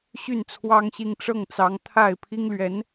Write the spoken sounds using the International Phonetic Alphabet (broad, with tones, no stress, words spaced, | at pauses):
ɕy˥˩nt͡sʰwɑ˥ŋɕi˥˧ŋ ʈ͡ʂɤ˥˩ŋt͡sɑ˧˥ŋt̪ʰa˥˩ɪ̯ pʰi˥ŋlɥɛ˧˥n